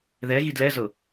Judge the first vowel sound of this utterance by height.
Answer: mid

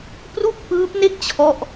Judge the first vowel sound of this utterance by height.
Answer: high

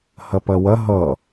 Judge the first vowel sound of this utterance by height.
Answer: low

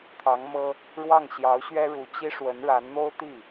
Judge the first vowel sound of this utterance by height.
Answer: low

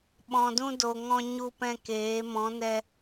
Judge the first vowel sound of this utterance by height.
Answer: mid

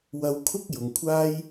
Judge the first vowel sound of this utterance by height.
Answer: low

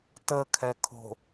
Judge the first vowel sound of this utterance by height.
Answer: mid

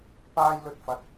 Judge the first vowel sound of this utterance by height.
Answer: low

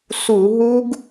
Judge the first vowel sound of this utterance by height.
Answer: high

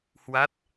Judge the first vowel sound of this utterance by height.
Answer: low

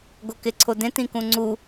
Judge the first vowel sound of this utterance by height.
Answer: mid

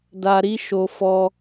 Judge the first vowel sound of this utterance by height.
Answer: low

